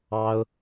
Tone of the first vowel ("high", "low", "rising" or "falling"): high